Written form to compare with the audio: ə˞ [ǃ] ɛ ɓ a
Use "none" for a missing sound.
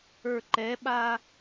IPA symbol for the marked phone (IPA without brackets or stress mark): ǃ